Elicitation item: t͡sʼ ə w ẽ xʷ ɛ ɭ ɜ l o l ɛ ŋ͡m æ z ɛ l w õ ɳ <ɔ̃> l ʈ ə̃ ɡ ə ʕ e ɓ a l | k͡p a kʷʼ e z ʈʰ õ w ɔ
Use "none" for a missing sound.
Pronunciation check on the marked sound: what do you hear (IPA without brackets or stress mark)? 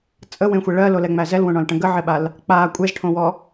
ɔ̃